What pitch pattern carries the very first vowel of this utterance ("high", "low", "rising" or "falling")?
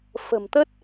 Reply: low